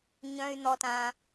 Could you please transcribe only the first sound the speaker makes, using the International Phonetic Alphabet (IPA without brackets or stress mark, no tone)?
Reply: ɲ